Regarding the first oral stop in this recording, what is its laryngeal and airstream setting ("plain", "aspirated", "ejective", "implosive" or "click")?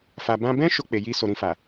plain